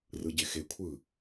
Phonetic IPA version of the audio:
rɯɟexekʷʰɯ

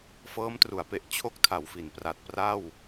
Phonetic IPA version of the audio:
fɤː˦˥mtru˩˦a̯pe˨˩ʔ t͡ɕʰo˥˩k̚tʰa˩˦wfi˩˦npra˨˩t̚ pra˥˩w

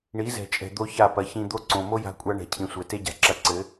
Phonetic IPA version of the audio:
ɳi˨˦zɛ̤˨t͡ʃʼɛ̤˨ d̪o˦ça˦˨ pɐ˨ çĩ˧d̪o˦ǀõ˨ mo˦ja̤˧kʷʼa˧ ɳɛ̤˨cʰĩ˨sʷɛ˨ te˦ɟa̤˨ǁɐ˧ǀɘ˨˦

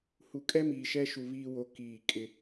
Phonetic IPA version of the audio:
hu˨kʼɛ˦miː˨ ʃɛ˦ʃu˨ βiː˦ wo˦kiː˦˨ kʼɪ˦

